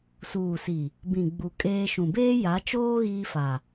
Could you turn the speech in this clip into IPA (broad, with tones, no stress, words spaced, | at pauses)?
suː˨si˨ | bĩ˨ ɡ͡bu˨kʼeː˦ʃũ˨ beː˦ja˨˦t͡ʃoː˦ ɣiː˦fa˨